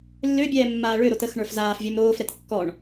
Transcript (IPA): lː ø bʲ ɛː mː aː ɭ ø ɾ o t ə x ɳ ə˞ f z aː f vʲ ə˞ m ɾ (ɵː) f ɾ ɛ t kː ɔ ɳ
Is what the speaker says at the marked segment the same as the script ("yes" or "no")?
no